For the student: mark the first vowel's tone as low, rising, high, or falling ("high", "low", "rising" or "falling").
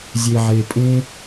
low